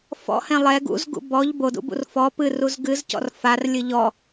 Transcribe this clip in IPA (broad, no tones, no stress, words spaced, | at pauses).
fɔ̰hɛ̃ lˠɛ ɡṵzɡṵ bɔʎ bodṵbṵr fɔ pɨ ruzɡɨzcɔ̰r far lʲɨʎɔ